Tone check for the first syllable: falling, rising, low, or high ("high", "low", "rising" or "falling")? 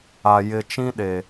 low